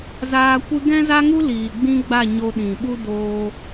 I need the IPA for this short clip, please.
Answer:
z aː˧ kʷ ɨ˦ ɡ ɛ̃˦ z a˦ ŋ u˦ l iː˨ ɡ͡b ĩ˦ ɡ͡b a˦˨ ɲ o˧ ɗ ĩ˨ ɓ u˦ d oː˧

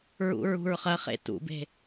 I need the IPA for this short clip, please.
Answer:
ɹ ṵ ɹ ṳ ɹ χ ɐ χ ḛ t ṵ b e̤

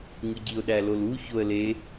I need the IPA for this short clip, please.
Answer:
ŋ ɯ ɟ i ʊ̯ ɗ æ l o l u ç o ə̯ l e

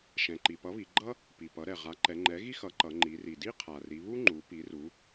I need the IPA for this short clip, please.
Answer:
ʃ ɛ̃˩ ǃ i˩ p ʌ˩˥ β i˩˧ ɡ͡ǃ ʌ˥ | p i˩ p ʌ˩˥ ɾ ɛ˩ ʁ a˩˥ ǃ ɛ˩˧ ŋ͡ǃ ɛ˩˥ ɣ i˥ x ʌ˩˥ ǃ ʌ˩˧ ŋ͡ǃ i˩˧ r i˩ d i˥ qʰ a˩ r i˩˧ β u˥ ŋ͡ǃ u˩˧ p i˩˧ r u˩˧

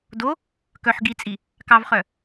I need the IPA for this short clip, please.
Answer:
d o | k œ ħ ɡ i t͡sʼ i | k ɑ v χ œ

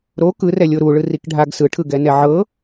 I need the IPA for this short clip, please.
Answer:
ɾ o k ɯ r ɛ lʲ o ɾ u ɭ ɯ r i k ɖʱ a ɡ s ɯ ʈʰ ɯ ɡ ɛ n ɛ ʕ ɤ

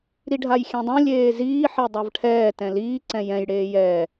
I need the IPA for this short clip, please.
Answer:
ɾ i ɖʱ a j xʲ ɛ̃ dˤ õ lʲ eː z iː ħ ɛ dˤ a v ʈʰ ɛː t ɛ̃ l iː ǀ ɛ̃ j ɛ̃ j ɽ eː j ɛː

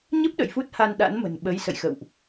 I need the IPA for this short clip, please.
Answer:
ɲ ə˦˥ p̚ ɗ ə̰˧˨ j f u˦˥ t̚ h a˧ n ɗ a̰˧˥ n m ə̤˨˩ n ɓ ə˨˦ j s ə̰˧˨ j x ə̰˧˨ w ʔ

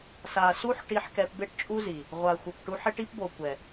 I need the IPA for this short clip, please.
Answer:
s a˨ s u˦ ħ ʈ i˧ ħ k ɛ˧ p b e˦ ʈ t͡ʃʼ u˦ z i˨ | ʁʷ a˨ xʷ ɪ˨ p ʈ u˧ ħ ɪ˦ ʈ i˦ p b o˨ kʷ ɛ˨

